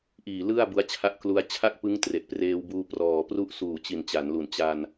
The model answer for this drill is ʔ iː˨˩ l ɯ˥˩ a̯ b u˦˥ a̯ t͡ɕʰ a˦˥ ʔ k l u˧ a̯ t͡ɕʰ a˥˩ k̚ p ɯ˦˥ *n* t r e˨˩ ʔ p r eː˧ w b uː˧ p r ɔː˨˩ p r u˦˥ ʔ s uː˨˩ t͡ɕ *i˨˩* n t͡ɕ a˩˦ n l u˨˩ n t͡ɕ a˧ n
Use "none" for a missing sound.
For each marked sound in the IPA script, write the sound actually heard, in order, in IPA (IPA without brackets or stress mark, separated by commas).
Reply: ŋ, i˨˩